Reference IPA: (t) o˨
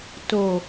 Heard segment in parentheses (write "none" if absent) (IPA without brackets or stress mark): t